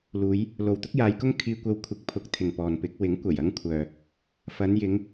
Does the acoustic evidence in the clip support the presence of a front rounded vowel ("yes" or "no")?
yes